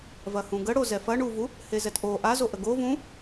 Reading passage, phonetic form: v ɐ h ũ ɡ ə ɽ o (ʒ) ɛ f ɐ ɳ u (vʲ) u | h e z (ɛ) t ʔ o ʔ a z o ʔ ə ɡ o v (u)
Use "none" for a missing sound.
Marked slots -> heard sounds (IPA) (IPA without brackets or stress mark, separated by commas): z, v, ɛ, ũ